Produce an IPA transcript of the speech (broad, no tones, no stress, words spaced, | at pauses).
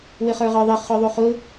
wɪχə˞ʁə˞ðˤɪ χʊðˤuχʊ